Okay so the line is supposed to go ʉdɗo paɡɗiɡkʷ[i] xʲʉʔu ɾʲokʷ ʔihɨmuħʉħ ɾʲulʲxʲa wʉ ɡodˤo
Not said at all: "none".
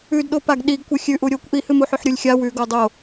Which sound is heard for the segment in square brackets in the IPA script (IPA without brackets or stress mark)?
ɨ